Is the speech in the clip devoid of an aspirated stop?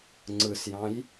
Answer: yes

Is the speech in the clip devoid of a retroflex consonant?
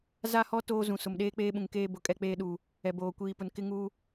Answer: yes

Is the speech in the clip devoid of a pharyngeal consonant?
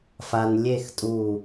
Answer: yes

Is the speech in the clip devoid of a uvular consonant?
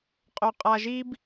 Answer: no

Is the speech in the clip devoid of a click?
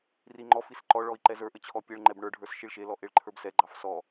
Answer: no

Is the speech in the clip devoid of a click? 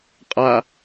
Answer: yes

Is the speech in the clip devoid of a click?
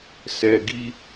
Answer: yes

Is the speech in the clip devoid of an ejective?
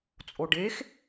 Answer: no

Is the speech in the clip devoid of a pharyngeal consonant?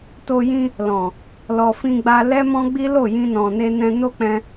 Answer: yes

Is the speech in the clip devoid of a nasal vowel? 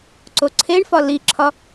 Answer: yes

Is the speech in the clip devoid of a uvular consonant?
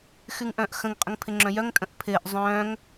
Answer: no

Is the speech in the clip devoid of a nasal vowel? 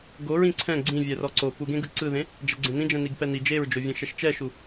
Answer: no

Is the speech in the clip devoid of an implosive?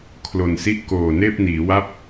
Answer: yes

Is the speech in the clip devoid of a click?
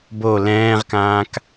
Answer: yes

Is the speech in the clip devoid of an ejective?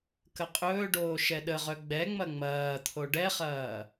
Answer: no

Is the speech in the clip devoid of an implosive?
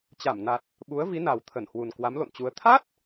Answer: no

